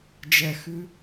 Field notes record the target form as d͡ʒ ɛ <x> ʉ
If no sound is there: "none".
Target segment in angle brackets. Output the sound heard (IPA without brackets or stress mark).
x